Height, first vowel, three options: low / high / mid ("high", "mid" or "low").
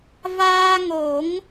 low